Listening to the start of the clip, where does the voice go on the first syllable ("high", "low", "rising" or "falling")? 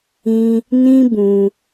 high